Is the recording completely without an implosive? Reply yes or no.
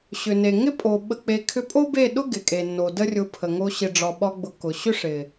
no